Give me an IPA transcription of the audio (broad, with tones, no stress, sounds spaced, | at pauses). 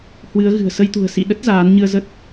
h w ɨ˨˦ ə̯ ɣ ɨ̤˨˩ ə̯ s ə˧ j t̪ ṳ˨˩ ə̯ s ḭ˧˨ ɗ ə˦˥ t̚ z aː˨˦ n ɲ ɨ˧ ə̯ z ə˦˥ t̚